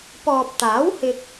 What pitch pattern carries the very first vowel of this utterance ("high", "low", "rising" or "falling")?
low